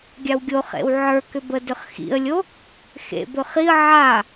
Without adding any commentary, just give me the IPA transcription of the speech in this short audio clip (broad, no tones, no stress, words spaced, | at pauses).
ɡʲawɡʲoχḛw ʕə˞kʏbədʏχ xḭə̯lʲo | xḛ bɵχiə̯ ʕa